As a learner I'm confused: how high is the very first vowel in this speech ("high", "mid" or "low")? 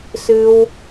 high